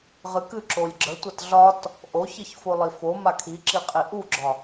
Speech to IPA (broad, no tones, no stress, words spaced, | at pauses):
ʁɨkɨ ǁolʲɡ͡ǁə tʷatɮɒt | ʔo çiçfolˠifo makʰiǁiqʼi ʔuɡ͡ǁɒ